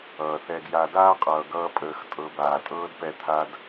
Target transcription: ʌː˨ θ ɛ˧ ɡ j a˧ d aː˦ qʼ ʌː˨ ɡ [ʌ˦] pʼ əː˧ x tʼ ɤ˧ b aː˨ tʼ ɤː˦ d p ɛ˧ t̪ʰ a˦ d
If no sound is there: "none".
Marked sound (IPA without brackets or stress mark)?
ʌː˦